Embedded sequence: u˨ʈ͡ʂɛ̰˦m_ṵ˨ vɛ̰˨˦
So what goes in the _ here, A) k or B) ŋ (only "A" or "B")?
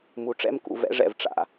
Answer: A